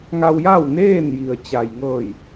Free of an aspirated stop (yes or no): yes